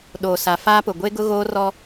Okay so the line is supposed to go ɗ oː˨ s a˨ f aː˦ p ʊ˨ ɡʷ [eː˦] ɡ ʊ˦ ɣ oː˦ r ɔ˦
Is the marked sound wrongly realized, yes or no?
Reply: yes